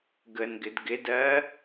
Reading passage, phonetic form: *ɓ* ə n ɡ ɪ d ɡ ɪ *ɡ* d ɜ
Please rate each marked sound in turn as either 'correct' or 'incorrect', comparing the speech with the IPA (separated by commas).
incorrect, incorrect